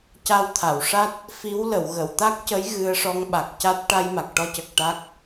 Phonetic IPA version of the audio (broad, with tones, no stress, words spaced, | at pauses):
ca˧wt̪ʰa˨˩˨wʂa˦˥t̚ | fi˧˥wlə˨˩˨wɣə˨˩˨w t̪a˦˥k̚cə˧˥j ɣɨ˧ə̯ʂɔ˧ŋɓa˨˩k̚ ca˦˥t̚ ʈa˧jma˨˩k̚ʈɔ˧ cə˨˩k̚ʈa˦˥k̚